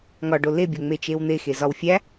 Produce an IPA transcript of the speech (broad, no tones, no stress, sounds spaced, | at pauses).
ŋ ɒ ɖ o l e bʲ o ŋ͡m e t͡ʃ e w n̪ e x e z ɒ w fʲ æ